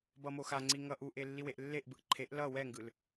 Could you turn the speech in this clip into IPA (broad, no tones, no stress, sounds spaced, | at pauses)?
b ʌ m o x a ŋ͡ǀ i ŋ ʌ ʔ u ʔ e lː i w e ʔ lː e ʔ b ɯ ʔ ǃʰ e ʔ l ʌ w ɛ ŋ ɡ ɯ l